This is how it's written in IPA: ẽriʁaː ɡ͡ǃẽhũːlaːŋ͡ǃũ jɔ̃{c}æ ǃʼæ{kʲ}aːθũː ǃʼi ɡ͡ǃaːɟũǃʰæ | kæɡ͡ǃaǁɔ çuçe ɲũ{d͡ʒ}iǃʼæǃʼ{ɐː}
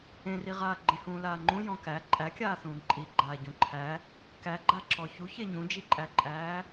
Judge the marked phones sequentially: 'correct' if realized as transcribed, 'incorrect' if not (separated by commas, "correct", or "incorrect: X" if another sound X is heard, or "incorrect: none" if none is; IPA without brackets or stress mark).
incorrect: k, correct, correct, incorrect: æː